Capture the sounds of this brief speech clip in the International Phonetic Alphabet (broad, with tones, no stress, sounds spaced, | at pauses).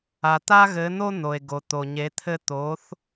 a˩ t̪ a˥ ɣ ɘ˩˥ n̪ o˥ n̪ o˩ e̯ ɡ o˩ t̪ o˩ ɲ e˩˥ t̪ʰ ɘ˥ t̪ o˩˥ θ